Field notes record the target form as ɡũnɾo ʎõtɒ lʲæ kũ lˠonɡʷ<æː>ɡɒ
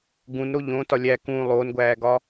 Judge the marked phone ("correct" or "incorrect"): correct